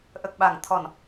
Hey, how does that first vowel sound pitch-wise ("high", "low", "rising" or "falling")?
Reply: low